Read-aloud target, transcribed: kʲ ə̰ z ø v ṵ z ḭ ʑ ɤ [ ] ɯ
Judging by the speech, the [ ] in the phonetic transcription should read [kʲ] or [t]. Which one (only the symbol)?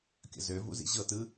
t